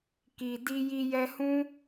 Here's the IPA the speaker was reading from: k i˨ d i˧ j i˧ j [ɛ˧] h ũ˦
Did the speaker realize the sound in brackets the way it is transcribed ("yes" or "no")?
yes